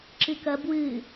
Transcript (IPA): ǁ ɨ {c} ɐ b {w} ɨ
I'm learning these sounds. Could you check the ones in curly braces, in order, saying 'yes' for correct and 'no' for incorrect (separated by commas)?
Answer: no, yes